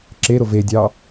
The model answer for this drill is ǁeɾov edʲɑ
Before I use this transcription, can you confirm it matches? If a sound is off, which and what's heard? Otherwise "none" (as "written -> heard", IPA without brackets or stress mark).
none